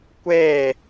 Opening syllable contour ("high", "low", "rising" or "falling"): falling